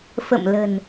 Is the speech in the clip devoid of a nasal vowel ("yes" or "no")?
yes